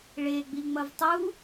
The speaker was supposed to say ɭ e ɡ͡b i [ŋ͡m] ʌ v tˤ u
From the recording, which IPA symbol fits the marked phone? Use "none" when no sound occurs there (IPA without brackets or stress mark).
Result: ŋ͡m